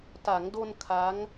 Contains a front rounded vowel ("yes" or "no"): no